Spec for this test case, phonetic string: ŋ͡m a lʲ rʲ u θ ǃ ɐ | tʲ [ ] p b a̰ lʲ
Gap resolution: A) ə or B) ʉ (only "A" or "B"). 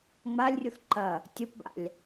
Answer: A